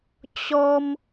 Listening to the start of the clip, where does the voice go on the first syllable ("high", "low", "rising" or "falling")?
high